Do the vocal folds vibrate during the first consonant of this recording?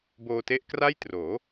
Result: yes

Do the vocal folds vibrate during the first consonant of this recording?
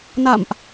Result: yes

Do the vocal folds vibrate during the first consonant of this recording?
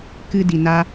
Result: no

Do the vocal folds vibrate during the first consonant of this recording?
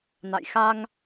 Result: yes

